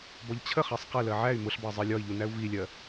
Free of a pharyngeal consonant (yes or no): no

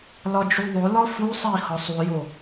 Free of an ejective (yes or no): yes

